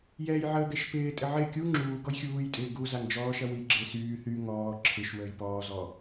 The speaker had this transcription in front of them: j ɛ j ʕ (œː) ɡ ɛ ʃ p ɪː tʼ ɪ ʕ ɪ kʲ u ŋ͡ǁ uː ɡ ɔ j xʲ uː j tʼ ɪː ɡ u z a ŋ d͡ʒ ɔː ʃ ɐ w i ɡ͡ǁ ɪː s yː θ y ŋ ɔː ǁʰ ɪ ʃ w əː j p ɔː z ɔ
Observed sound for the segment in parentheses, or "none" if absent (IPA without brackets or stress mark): əː